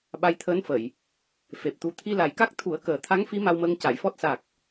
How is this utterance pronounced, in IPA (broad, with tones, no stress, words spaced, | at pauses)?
ɓa˧jt̪ʰəː˧˥nfə˨˩˨j | fe˨˩p̚t̪u˧ t̪ʰi˧la˨˩jka˦˥k̚ t̪ʰu˨˩˦ə̯ kəː˨˩t̪ʰa˧˥ŋfi˧˥ ma˧wməː˧ŋca˨˩˨jfɔ˦˥t̚ sa˨˩k̚